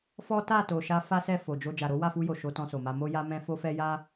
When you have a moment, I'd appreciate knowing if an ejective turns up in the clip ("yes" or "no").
no